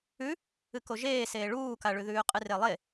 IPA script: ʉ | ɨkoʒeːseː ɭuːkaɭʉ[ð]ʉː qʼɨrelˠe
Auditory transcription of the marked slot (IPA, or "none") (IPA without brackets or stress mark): ð